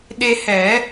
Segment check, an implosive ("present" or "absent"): present